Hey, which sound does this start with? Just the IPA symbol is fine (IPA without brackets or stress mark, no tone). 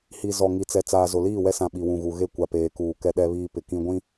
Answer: h